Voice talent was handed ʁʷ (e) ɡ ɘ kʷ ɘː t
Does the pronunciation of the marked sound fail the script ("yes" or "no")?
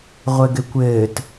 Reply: yes